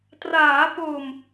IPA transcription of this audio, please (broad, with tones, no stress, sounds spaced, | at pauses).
t r aː˩˦ p o˨˩ m